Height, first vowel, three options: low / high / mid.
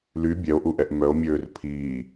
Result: high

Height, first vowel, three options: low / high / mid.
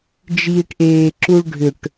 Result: high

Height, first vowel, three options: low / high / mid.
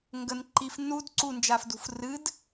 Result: mid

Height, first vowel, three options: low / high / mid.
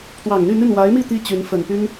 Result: low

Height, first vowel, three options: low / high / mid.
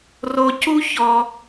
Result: mid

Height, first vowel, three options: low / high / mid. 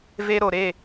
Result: mid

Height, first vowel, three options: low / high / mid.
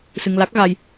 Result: high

